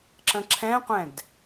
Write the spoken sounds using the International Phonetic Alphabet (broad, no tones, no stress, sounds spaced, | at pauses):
ǁ ə̃ ǁʰ ɛ̃ qʷ ɛ̃ d